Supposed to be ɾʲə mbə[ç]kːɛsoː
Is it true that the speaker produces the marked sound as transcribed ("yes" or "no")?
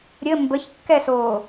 yes